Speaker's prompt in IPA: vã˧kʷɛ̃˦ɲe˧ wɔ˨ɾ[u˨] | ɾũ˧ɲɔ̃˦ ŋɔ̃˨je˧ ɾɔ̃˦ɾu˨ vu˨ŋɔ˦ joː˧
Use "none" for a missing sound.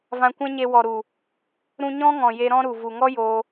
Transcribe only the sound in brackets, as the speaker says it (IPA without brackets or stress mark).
u˨